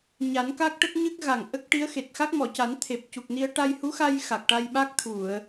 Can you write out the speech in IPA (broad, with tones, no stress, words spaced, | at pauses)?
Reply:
ɲa˨˩˦nka˦˥k̚ʈə˦˥k̚ ɲɨ˦˥k̚ɣa˨˩ŋ ʔə˦˥k̚ʈi˧˥ə̯ xe˨˩t̚xa˦˥k̚mɔ˨˩˨ca˨˩˦n t̪ʰe˨˩p̚cu˨˩k̚ni˧ə̯ ʈa˧jhu˧˥xa˧j xa˨˩k̚ʈa˧jɓa˦˥k̚ t̪ʰu˨˩˨ə̯